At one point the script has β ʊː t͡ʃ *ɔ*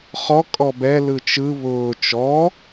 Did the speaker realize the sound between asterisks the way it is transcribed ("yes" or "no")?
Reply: yes